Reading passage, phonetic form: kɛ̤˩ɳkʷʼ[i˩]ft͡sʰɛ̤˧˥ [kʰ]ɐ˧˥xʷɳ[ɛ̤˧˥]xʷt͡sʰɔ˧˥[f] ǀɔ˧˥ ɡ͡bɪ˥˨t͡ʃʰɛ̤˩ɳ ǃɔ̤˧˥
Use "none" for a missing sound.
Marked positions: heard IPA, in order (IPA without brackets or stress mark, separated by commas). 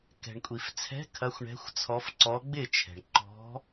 i˩, kʰ, ɛ̤˧˥, f